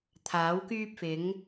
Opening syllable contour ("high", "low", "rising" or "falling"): rising